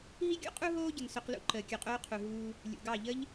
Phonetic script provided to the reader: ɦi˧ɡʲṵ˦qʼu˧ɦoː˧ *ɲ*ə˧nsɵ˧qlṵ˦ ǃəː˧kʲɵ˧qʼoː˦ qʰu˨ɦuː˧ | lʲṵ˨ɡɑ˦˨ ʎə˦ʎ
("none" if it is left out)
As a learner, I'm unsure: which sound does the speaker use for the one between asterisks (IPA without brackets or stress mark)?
ɟ